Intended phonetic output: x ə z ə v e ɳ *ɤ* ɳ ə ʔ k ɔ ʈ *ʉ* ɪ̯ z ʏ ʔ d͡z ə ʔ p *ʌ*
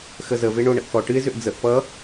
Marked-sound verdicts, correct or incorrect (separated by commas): incorrect, incorrect, correct